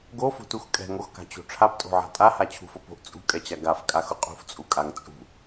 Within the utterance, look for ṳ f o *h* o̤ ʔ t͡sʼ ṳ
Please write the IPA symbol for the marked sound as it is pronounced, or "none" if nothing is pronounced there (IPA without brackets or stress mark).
p